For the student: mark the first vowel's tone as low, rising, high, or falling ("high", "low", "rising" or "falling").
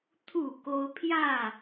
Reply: falling